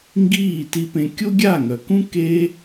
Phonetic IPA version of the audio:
ŋ ɡ iː˦˨ t i˧ p ẽ˧ kʲ o˦ ɡʲ a˦˨ ŋ œ˨ k ũ˦ k e˦

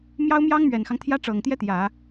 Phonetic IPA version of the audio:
m j ɑ˥ ʊ̯ m j ɑ˥ ŋ m ɥ ɛ˨˩ n x ɑ˦ ŋ t̪ʰ j ä˥ ʈ͡ʂ ɤ˨˩ ŋ t̪ j ɛ˥ t̪ j ä˨˩˦

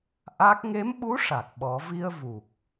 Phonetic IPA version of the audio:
ʔ a˦˥ k̚ ŋ e˧˥ m ɓ u˧˥ ʂ a˨˩ k̚ ɓ ɔ˨˩˦ v i˧ ə̯ v u˨˩ k̚

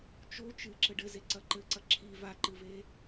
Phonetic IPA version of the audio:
t͡ʃ o t͡ʃ ɨ ǁ ɘ ɖ ɘ z e ǀ ɐ ǃ ɘ ǀ ɐ ǁʰ i v a ǃ ɨ v e

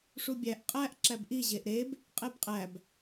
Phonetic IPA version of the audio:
ʂ u bʲ æ ʔ qʼ æ ʔ ǁ æ b ʔ i ʑ e ʔ ɾ e b | qʼ e b qʼ æ b

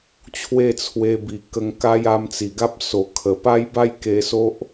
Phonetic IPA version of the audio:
t͡ɕʰ w e˥˧ t͡sʰ w e˧ b i˨˩ k ə˧ ŋ k a˦ j a˧ m t͡s i˨˩ ɡ a˦ p̚ s o˨˩ kʰ ə˨˩ p a˦ j b a˥˧ j k e˧ s o˦ ʔ

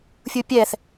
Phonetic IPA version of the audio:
fʲ u pʲ ɛ θ

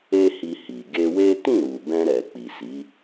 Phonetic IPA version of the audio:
e˦ h i˧ h i˨ ɡ e˧ w e˦ t ĩ˦˨ ɾ u˨ b ɛ̃˧ ɾ ɛ˨ k͡p i˨ s i˨˦

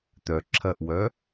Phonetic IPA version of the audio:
t̪ œ ǁʰ ɐ ʔ w œ

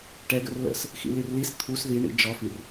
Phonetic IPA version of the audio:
ʈ ɛ ɡ ə̰ r l ə̰ s | x ḭ l i r l i s t̪ʰ u s ð i ɳ ḭ d͡ʒ ɔ f i r

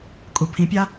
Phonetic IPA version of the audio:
kʼ u pʰ ĩ pʲ a

